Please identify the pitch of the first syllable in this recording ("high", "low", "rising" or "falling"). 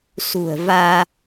low